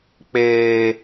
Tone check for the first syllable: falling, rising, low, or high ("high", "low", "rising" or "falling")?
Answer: low